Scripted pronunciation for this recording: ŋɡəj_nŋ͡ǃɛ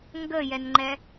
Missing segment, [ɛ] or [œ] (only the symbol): ɛ